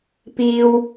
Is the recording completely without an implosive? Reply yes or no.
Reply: yes